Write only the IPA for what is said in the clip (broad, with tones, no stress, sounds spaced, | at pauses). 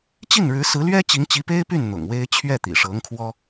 t͡ɕ i˥˩ n ɻ ɻ̩˧˥ s ɹ̩˧˥ l ɥ ɛ˥ t͡ɕ i˧˥ ŋ t͡ɕ i˧˥ p e˥ ɪ̯ p y˥˩ n n̪ ʊ̰˨˩ ŋ w e˥ ɪ̯ t͡ɕʰ ɥ ɛ˥˩ t̪ ḭ˨˩ ʂ ɤ˧˥ ŋ kʰ w ɔ˥